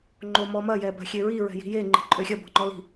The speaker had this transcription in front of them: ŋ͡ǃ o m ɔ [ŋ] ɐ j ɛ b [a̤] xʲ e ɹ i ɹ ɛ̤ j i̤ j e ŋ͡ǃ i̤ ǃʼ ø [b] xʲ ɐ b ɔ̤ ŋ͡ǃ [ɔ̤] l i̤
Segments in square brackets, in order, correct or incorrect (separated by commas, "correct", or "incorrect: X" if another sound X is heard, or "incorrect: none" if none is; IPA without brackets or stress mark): incorrect: m, correct, incorrect: none, incorrect: ɔ